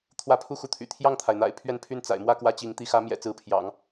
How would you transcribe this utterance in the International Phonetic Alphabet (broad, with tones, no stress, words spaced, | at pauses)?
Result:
t̪ʰwä˥˧pʰu˥˧xu˥˩t̪ʰy̰˨˩ t̪ʰjɑ˥˩ŋt̪ʰa˩ɪ̯ n̪a̰˨˩ɪ̯ pʰɥɛ˥˧n pʰy˥˩n t͡sa̰˨˩ɪ̯mwä˥˧ kwä˥˩t͡ɕi˧˥ŋ t̪i˧˥xä˧˥mjɛ̰˨˩ t͡sɹ̩˧˥pʰjɑ̰˨˩˦ŋ